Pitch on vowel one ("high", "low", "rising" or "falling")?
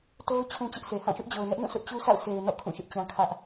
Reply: high